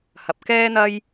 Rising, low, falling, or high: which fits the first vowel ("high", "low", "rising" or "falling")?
low